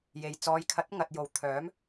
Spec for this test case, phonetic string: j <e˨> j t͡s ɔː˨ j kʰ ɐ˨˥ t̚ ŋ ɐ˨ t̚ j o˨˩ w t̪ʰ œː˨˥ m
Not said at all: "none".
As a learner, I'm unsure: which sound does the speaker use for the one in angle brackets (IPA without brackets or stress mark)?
e˨